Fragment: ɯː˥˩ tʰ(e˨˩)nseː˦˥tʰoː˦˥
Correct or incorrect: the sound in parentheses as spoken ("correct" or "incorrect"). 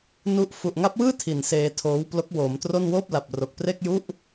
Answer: incorrect